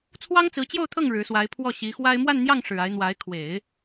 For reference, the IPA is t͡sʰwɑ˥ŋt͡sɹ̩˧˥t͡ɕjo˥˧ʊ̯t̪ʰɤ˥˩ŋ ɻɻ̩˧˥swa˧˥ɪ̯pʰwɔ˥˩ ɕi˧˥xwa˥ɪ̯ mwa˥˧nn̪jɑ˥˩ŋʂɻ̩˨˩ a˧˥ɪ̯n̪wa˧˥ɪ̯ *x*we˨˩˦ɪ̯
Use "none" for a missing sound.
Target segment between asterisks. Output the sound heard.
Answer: kʰ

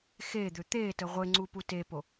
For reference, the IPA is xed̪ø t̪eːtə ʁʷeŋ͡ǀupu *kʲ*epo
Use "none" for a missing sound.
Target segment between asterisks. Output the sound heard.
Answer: t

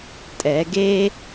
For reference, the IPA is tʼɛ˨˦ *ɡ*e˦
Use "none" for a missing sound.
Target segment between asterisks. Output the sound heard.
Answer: ɡ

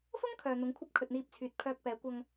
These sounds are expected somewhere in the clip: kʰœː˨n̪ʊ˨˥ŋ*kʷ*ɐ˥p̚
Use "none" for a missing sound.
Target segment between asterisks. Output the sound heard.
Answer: kʷʰ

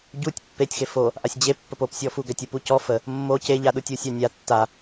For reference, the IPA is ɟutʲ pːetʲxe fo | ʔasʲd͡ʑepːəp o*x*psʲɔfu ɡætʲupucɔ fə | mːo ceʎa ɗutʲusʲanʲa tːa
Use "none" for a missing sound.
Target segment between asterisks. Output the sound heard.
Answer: none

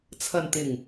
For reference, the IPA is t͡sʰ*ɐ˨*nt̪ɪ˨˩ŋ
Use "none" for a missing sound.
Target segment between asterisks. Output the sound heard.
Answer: ɐ˨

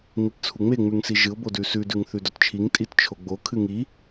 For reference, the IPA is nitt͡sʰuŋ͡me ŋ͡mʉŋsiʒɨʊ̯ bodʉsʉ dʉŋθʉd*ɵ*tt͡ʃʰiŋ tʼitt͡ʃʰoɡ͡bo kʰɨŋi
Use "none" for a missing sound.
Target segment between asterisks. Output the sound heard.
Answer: ɵ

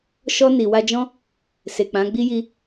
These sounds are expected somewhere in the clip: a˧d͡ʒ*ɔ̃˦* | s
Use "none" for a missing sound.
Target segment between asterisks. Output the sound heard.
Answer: ɔ̃˦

